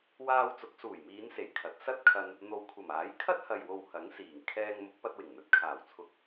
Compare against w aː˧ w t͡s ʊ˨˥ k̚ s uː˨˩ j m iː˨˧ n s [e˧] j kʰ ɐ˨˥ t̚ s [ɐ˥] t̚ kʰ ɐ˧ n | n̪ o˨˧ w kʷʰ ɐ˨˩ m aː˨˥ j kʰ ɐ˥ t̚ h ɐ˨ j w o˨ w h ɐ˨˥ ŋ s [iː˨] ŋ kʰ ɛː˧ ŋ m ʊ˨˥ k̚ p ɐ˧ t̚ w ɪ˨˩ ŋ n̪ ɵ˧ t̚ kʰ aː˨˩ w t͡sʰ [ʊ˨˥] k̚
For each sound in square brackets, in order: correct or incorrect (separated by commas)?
incorrect, correct, incorrect, correct